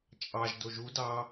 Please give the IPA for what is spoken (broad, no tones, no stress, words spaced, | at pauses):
t͡ʃʼɑʒdo ʒu dɑ